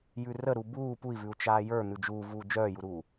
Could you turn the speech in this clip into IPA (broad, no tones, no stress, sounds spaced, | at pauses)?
j ʉ r ə ɾ u b uː p u i̯ v ʉ u̯ t͡ʃ aː j ə˞ n̪ ʉ d͡ʒ uː v uː d͡ʒ œː j u ɾ uː